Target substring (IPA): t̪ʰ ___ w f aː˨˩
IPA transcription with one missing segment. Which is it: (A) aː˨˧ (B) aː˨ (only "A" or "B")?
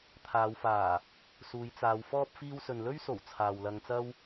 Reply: A